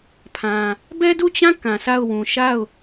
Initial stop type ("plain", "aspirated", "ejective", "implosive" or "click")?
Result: aspirated